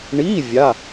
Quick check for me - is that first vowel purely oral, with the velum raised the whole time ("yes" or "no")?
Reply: yes